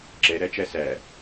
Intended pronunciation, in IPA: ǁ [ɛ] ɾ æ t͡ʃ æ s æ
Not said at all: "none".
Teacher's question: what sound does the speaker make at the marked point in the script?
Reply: ɛ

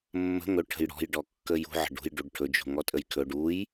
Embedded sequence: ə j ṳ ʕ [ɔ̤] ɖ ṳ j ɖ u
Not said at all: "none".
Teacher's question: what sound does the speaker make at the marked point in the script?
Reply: ə̤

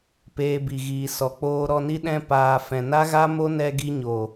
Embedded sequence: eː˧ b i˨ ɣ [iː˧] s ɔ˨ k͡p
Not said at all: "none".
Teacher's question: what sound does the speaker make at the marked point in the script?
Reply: iː˨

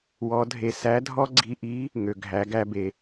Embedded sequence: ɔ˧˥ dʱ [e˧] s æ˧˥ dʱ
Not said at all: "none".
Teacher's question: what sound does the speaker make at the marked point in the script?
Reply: e˧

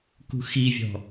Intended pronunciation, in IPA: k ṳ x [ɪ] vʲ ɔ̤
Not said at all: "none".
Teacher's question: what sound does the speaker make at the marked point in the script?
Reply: i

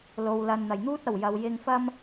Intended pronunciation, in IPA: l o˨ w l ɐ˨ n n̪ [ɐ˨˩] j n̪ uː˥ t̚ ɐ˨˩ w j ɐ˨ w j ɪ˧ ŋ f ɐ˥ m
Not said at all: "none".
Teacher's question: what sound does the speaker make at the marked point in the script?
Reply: ɐ˨˩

